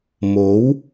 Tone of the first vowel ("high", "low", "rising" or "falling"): rising